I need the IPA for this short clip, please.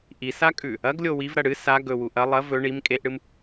ʔ i s a kʼ ʉ | ɐ ɡ lʲ o w i v ɾ ɐ ɽ ɨ s a ɡ ɵ w u ʔ ɐ lˠ ɐ v ɵ ɳ i m kʼ e ʔ ɽ ɨ m

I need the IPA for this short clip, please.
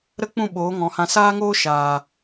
ɾ ə˦ k͡p ũ˦˨ ɓ oː˨˦ ŋ ɔ̃˨ h ã˧ s aː˦ ŋ oː˦ ʃ aː˨

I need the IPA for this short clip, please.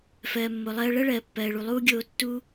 f ɜː˩ mː o˩ lˠ ɜː˧ ɭ ɜ˥ ɭ ɜː˩ pː ɜː˩ ɭ u˩ lˠ uː˥ ɡʲ oː˧ tː uː˥

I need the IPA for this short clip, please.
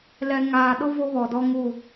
l ɛ˨ ŋ aː˨ ɗ ʊ˦ v o˦ β ɔ˨ d ɔ˦ ŋ u˦˨

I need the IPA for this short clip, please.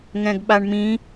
ŋ ɛ̃ ɡ ɓ a ɳ m ĩ

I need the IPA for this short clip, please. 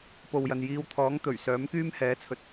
p o˨ w j ɐ˨ n j iː˧ w t̪ʰ ɔː˨˥ ŋ t̪ ɵ˨˩ ɥ s œː˨˥ m k yː˥ m h ɛː˨˥ t͡sʰ ɵ˨ t̚

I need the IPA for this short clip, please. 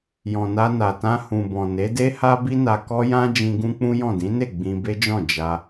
j ɔ̃˨ n a˧ n a˨ t ã˧ h ũ˨ b ɔ̃˨ n e˨˦ d e˦ h a˦ b i˦ n a˧ k ɔ˦ j ã˦ d͡ʒ ĩ˧ ɡ ũ˦ k͡p ũ˦ j ɔ̃˦˨ d ĩ˨˦ n e˦˨ ɡ͡b ĩ˧ b e˦ d͡ʒ ɔ̃˦˨ d͡ʒ a˧

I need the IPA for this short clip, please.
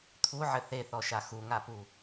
t̪ʰ u ʕ ɘ θ e θ ɔ ʃ a x u ŋ a p u

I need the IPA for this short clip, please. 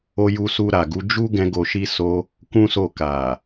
o˧ j u˧ s u˧ ɾ a˨ ɡ u˨˦ d͡ʒ u˦ ɡ ɛ̃˦ ɡ o˧ ʃ i˦ s o˦ | k ũ˦ s o˦˨ k a˨

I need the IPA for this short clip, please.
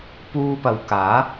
p uː˧ p ɐ˨ w k aː˨˥

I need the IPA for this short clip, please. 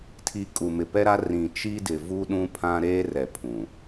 tʰ i˨ kʼ u˨ m ɪ˨ p ɛ˦ ɾ a˦ r ĩ˨ t͡ʃ i˦ d ɪ˨ v u˦ ɗ ũ˦ pʰ ã˦ ɾ eː˦ r ɛ˨ pʰ ũ˨

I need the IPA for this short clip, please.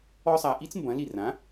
ɔ˥ sˤ a˧ ʔ i˥ t͡s m b ɐ̃˩˥ l i˥˩ r ã˩˥

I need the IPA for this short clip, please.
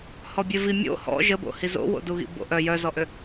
h ɔ bʲ e v i mʲ o̰ h ɔ̰ ʒ ə b o̰ h i z o̰ w o̰ d u ɣ ḭ b o̰ ʔ œ j œ z ɔ ʔ ø

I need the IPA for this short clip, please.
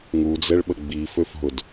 ŋ u d͡z ɛ ɭ ɓ ə ɡ͡b i f ø f ɦ ʊ d

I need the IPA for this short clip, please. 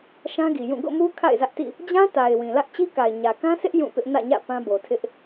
ʃ ã˦ ɡ i˨ j ũ˦˨ ɡ o̰˦˨ m u˦ kʰ a̰˦˨ ɪ̯ z ä˦ ʔ t ḭ˦˨ | d͡ʑ ã˦ t a˨ ɪ̯ w ĩ˨ l ä˦ ʔ t͡ɕ i˦ k a˨ ɪ̯ ɲ ä˨ k ã˦ sʰ ɪ˦ ʔ j ũ˦˨ p ɪ˦ ʔ n ä̰˦˨ ɲ ä̰˦˨ p ã˦ b o˨ tʰ ɪ˦ ʔ

